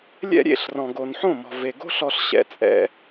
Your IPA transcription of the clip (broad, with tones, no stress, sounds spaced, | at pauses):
lʲ ɛ̰˦ ɾʲ ḛ˦˨ ɬ r ɔ̃˨ ɡ o˨ n ħ õ˦˨ m ɔ̤˨ v e˨ ɡ o̤˦ ɬ ɔ˧ ɬ ɕ ɛ̰˧ t͡sʼ ɛ̰˧